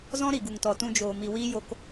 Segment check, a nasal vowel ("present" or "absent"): present